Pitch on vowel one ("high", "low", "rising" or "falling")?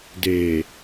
low